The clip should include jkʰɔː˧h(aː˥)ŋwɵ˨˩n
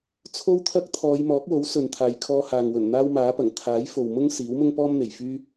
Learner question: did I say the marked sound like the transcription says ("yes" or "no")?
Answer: no